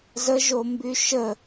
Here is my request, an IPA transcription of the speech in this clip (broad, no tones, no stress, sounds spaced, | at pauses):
z ə ʒ o m b y ʃ ə